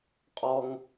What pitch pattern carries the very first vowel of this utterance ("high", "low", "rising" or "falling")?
high